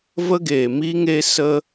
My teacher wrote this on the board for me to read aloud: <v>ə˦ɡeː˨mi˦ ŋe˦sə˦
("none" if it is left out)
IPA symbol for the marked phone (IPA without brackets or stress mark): v